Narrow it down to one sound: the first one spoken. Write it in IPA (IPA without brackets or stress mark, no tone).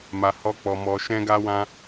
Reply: m